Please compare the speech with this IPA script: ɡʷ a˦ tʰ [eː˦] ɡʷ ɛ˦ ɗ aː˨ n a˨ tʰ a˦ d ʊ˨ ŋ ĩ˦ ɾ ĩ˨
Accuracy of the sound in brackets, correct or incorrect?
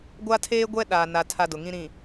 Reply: correct